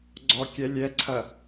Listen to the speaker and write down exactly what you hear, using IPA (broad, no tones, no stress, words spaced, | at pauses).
ɡ͡ǀɔkʲɛ lʲɛǀʰɐ